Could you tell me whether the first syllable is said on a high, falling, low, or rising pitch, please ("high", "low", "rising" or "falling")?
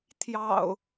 low